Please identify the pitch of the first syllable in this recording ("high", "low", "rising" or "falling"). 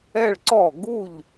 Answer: falling